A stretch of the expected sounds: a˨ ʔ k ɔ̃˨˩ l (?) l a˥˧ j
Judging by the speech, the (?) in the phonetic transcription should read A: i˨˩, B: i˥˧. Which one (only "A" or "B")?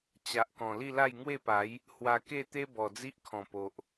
B